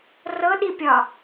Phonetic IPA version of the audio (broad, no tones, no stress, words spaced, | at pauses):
rɤɗipʲɒ